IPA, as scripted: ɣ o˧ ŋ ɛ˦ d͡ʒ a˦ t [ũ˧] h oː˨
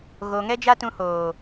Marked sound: correct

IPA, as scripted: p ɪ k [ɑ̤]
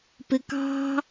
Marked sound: correct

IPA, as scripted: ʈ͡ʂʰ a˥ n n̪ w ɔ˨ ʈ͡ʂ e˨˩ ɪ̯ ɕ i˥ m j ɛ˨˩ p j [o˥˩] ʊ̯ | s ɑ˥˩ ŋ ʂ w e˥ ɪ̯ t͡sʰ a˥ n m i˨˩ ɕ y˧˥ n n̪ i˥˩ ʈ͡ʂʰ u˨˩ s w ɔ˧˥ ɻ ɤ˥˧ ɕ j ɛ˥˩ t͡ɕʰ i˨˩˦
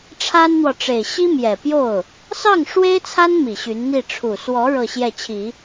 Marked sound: correct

